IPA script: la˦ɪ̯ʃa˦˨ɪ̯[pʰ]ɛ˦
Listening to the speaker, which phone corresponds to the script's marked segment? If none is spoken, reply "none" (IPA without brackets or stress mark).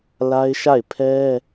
pʰ